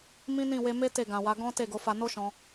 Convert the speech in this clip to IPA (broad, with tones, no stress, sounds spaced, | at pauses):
m ĩ˦ n ĩ˦˨ w e˧ m e˦ t e˦˨ ɡ ã˨ w a˨˦ ɡ ɔ̃˦ t e˦˨ ɡ o˨˦ f a˧ n o˦ ʃ ɔ̃˧